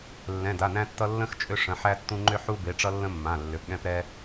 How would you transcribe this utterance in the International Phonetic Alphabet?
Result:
lː ɛ̃˩˧˩ d a˩˧˩ n æ̃˦ tː ʌ˦ lː ə̃˦ x t͡ʃʼ ʏ˦ ʂ ə̃˩˧˩ ħ æ˦ tː ũ˦ ŋ͡ǃ ʏ˦ ħ u˦ b e˩˧˩ ʈ͡ʂ ʌ˦ lː ə̃˦ mː ã˩˧˩ lː ʏ˩˧˩ p ɠ ɛ̃˦ p ɾ ɛ˦

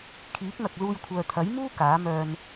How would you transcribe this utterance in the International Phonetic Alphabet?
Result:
kʰ iː˨˥ k̚ n̪ ɐ˨ k̚ l uː˧ j kʷʰ œː˨ t̪ʰ ɐ˨˥ j m uː˥ k aː˨˥ m œː˧ n

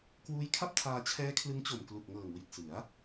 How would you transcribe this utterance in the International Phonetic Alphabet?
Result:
k w uː˦˥ j kʰ a˥˩ p̚ tʰ aː˧ t͡ɕʰ ɛː˦˥ kʰ l ɯ˦˥ ŋ t͡ɕ o˨˩ m k l u˨˩ k̚ ŋ ɤː˨˩ ŋ w i˨˩ t̚ s ɯ˩˦ a̯

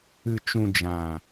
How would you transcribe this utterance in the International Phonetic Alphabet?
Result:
ɨ˨ t͡ʃ ũ˨ d͡ʒ ã˨

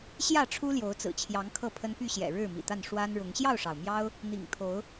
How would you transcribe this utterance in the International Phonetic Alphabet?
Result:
ɕ j ä˥˨ ʈ͡ʂʰ u˦ l j o˨˦ ʊ̯ t͡s ɹ̩˨˩ t͡ɕʰ j ɑ˨˦ ŋ kʰ ɤ˥˨ pʰ ə˦ n p y˥˨ ɕ j ɛ̰˨˩ ɻ ɻ̩˥˨ m ḭ˨˩ t̪ a˥˨ n ʂ w a˦ n ɻ ʊ˨˦ ŋ ɕ j ɑ˥˨ ʊ̯ ʂ ɑ˩ ʊ̯ m j ɑ˦ ʊ̯ | n̪ ḭ˨˩ ŋ t̪ʰ o˨˦ ʊ̯

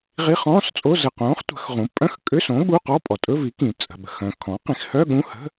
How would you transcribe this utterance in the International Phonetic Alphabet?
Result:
ʁ i˧˥˧ χ ɔ̃ː˧˥˧ s t͡sʼ o˧˥˧ z ə˩ q õː˩˥ χ tʷ ə̤˩˥ x ʁ ũ˩˥ pʼ œ̃˧˥˧ x kʼ ø˧˥˧ s õ˩˥ ɠ u˧˥˧ q ɔ˧˥˧ pʼ ɔ˩ tʼ ɵ˧˥˧ v i˩˥ k ĩː˩ t͡sʼ ə̤˩ ɓ ə̤˩ x œ̃˩ kʰ ɔ̃˩˥ q ĩ˩˥ x h œ˧˥˧ ɠ ũ˧˥˧ h ə̤˧˥˧

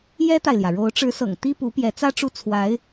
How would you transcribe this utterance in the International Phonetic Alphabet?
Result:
j ɛ˥ t̪ a˨ ɪ̯ l j ä˩ ɻ o˧˥ ʊ̯ ʈ͡ʂ ɻ̩˧˥ s ɤ̰˨˩ ŋ t̪ i˥ p u˧˥ p j ɛ˧˥ t͡s ä˥ ʈ͡ʂ u˥˩ t͡sʰ w a˧˥ ɪ̯

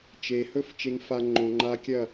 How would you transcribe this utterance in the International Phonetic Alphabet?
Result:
t͡ʃ e˨ h ɵ˦ f t͡ʃ e˧ ŋ f a˧ ŋ͡ǃ õ˨ ŋ͡ǃ a˧ kʲ ɐ˦˨

